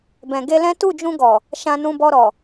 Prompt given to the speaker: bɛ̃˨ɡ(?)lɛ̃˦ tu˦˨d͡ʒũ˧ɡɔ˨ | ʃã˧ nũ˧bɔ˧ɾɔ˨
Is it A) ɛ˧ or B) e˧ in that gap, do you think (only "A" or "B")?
B